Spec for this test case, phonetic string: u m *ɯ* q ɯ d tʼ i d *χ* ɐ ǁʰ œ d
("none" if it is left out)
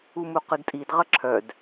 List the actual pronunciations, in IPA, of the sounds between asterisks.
u, ʁ

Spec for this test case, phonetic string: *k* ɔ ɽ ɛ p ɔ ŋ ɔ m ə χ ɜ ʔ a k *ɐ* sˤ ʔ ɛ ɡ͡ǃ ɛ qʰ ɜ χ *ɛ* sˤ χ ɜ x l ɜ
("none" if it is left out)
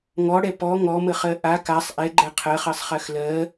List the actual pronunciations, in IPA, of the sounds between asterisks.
ŋ, a, ɜ

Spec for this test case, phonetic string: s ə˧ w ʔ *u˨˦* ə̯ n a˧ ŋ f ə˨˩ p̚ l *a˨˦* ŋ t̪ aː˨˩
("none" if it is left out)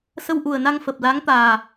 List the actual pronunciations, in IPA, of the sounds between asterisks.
u˨˩, a˨˦

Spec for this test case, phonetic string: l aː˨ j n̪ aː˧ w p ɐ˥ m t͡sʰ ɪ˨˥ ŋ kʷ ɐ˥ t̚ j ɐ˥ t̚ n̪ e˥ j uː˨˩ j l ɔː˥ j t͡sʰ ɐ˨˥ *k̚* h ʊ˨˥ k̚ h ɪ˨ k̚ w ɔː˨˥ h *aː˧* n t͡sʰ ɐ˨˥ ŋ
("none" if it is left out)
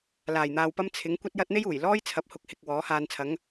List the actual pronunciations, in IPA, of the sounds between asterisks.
p̚, aː˧

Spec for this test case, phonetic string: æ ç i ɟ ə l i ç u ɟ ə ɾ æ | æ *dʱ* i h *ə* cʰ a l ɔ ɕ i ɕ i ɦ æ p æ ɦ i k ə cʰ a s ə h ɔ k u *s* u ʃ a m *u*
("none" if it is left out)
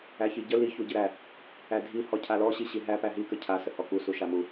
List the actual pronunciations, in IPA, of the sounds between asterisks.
dʱ, ɔ, s, u

